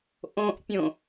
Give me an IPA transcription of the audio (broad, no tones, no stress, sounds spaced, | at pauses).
ʔ õ ʔ pʲ õ